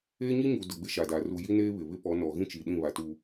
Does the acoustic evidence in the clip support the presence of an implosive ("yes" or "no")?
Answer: yes